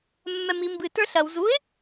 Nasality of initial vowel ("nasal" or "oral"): oral